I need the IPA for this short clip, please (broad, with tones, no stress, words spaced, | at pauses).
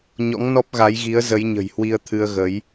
ɲɔ̰˧˥ŋnɔ˦˥p̚ɣa˨˦jɣi˨˦ə̯ zə˨˦jɲə̤˨˩jhwi˧ə̯ t̪ʰɨ˧ə̯ɣə˨˦j